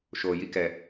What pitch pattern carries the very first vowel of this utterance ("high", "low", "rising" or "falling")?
low